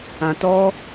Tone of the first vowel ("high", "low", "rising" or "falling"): low